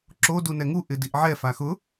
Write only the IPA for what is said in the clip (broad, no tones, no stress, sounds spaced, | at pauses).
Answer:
ǁ o d u n ɛ ŋ u ʔ ɪ d i ʔ ʕ ɛ f a x ʊ